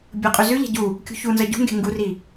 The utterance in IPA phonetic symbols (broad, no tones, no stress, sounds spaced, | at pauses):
bʲ o qʼ ʉ z ʉ ʎ æ̤ ɟ u | kʲ ṳ ç u n z ʌ ɟ ṳ ŋ ɡ e̤ ŋ ɡ u r i